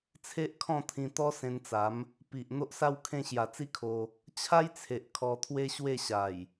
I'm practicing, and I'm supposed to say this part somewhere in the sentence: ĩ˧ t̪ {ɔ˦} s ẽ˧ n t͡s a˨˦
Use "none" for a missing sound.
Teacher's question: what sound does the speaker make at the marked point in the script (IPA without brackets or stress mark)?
ɔ˦